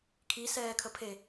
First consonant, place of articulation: velar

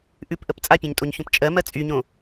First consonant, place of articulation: glottal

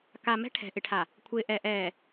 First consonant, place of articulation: velar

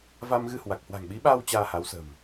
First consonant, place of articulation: labial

